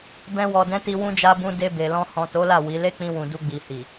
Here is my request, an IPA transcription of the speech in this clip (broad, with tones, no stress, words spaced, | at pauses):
bɛ̃˧ wɔ˨dɛ̃˨˦ti˧ wũ˧d͡ʒa˧bũ˧ de˧be˨lɔ̃˧ hɔ̃˨to˨˦la˦˨ wi˨˦ le˦k͡pĩ˧wũ˨ du˧ɡ͡bi˨hi˨